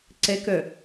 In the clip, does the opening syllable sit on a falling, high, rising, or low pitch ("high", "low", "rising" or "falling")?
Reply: rising